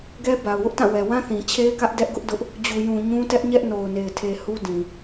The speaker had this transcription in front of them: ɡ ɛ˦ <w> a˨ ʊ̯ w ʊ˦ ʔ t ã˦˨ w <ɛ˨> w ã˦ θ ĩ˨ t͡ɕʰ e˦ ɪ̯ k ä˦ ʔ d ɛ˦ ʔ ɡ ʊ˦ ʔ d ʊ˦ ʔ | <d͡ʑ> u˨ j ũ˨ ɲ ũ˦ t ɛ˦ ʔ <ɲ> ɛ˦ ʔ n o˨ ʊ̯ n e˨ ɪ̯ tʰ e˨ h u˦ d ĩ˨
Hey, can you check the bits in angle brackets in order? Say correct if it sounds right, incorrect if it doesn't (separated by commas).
incorrect, correct, correct, correct